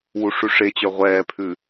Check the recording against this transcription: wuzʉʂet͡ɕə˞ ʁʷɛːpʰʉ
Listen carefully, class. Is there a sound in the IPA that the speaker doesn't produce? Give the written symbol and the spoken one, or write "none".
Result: z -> ʂ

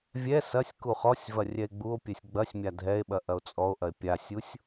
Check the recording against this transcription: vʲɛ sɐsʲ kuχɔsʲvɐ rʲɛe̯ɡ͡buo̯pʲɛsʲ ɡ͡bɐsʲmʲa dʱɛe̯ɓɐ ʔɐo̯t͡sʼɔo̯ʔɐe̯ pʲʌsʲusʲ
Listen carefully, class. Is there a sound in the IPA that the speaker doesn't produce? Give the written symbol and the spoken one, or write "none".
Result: ʌ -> a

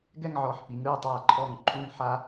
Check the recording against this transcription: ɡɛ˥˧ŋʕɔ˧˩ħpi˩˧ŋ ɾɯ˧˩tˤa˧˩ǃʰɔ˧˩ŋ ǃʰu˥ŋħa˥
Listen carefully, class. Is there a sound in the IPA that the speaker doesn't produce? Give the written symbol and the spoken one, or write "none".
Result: u˥ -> u˥˧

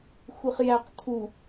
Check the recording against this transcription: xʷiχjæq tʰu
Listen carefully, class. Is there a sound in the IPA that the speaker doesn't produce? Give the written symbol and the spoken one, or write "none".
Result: none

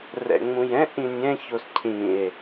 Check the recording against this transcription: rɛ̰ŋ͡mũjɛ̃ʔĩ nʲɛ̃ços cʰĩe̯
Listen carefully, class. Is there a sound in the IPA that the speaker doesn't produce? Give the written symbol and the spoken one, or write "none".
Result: none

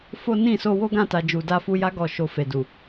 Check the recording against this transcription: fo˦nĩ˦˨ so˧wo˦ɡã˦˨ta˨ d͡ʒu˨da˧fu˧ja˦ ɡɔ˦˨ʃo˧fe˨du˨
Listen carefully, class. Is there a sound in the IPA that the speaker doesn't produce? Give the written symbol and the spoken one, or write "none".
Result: none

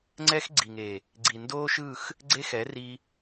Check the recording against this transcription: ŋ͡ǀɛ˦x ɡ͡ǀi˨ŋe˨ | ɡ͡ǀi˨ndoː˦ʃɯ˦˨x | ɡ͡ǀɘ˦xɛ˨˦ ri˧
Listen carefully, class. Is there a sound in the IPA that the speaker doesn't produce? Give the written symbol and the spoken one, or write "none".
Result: ɘ˦ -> e˦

